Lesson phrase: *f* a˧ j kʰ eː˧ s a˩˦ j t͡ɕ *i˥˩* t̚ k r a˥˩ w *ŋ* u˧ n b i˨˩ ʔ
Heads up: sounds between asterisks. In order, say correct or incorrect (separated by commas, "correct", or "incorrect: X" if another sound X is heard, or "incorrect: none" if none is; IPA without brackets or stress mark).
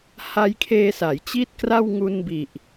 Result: incorrect: h, correct, correct